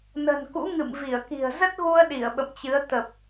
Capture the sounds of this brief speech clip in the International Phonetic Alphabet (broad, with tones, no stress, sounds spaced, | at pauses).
n ə̤˨˩ n k ṵ˧˥ ŋ ɨ̰˧˨ m v i˧˩ ə̯ k i̤˨˩ ə̯ z ə˦˥ t̚ ɣ u˧ ə̯ ɗ i˧˩ ə̯ ɓ ə̰˧˨ m t͡ɕ ɨ˨˦ ə̯ t̪ ə˨˩ p̚